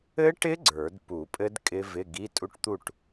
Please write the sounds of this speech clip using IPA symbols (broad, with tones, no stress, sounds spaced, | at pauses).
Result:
ɘ˦˥ ʈ ɪ˦˥ ɡ͡ǀ ə˞˨˩˦ d p u˨˩˦ pʼ ɘ˦˥ d kʼ ɪ˦˥ v ɪ˧˥˧ ɡ i˧˥˧ tʼ u˦˥ ʈ t̪ u˥˨ ʈ